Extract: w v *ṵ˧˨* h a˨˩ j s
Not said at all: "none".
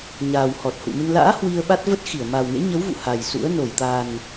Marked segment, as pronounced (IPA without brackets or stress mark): ṵ˧˨